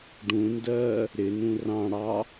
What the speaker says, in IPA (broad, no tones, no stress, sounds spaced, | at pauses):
ɖ ũ n d ɜ | ɾ ɪ n ũ r ɑ̃ ɽ ɑ